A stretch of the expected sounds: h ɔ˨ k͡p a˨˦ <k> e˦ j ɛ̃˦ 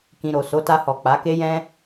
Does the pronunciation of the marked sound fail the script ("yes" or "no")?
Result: no